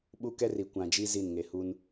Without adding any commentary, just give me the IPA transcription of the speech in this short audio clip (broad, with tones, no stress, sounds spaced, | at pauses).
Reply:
ɓ u˦ k ɛ˦ r i˨ kʷ ã˨ d͡ʒ i˦ z i˦˨ n ŋ e˨ h u˦ n